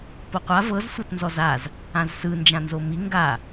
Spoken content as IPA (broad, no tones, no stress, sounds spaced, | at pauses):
p o qʷ a v ɤ z sʷ ɤ t n z ɔ z a z | ã z s ɯ n d͡ʒ ã n z o m i ŋ ɡ a